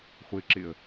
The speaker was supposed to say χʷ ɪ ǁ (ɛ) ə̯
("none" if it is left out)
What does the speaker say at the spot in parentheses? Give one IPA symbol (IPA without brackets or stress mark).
ɪ